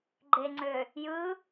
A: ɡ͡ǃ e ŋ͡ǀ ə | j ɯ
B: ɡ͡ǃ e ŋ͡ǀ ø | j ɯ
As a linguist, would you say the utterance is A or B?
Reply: B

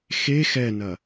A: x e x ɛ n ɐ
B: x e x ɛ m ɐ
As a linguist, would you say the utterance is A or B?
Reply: A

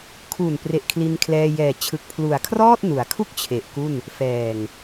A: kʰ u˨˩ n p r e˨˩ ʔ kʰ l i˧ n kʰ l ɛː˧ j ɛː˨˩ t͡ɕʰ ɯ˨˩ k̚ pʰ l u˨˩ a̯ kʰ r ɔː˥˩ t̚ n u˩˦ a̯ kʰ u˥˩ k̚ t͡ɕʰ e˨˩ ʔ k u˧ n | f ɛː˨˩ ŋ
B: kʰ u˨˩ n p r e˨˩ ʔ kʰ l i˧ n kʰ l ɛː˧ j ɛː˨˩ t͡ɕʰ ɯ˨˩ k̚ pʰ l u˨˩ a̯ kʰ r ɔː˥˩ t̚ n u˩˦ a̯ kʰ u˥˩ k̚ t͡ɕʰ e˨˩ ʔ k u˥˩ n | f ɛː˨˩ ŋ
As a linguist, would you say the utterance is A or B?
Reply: B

